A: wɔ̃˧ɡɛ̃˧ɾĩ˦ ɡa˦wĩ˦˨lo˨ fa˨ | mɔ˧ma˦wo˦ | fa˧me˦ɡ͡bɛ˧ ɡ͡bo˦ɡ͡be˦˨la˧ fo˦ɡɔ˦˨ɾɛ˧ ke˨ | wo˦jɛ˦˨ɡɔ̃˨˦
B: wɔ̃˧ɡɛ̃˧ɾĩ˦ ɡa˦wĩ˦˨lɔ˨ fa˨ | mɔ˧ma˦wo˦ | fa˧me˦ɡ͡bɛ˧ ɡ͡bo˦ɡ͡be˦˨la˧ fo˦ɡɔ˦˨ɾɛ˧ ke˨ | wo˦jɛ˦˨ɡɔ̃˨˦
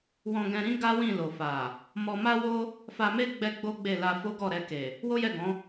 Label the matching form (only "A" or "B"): A